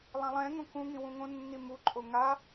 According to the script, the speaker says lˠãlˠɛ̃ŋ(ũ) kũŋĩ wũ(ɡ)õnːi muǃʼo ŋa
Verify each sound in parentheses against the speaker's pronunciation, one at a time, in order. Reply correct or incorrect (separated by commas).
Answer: incorrect, incorrect